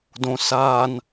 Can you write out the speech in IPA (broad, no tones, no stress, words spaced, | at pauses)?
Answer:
dõ san